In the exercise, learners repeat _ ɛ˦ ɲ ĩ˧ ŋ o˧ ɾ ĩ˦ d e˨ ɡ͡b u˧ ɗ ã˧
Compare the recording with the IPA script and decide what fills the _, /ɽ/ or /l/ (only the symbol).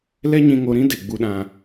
l